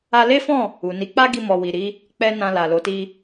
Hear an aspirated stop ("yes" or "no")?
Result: no